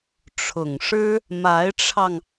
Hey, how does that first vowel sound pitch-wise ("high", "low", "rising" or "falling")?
low